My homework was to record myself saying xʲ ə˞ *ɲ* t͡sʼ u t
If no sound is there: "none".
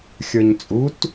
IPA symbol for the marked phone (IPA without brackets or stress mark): ɲ